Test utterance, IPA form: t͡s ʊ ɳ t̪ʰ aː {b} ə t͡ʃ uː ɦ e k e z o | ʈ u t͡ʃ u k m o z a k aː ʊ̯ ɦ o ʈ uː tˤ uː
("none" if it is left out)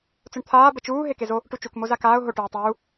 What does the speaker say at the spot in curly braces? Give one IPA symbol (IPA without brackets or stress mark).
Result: b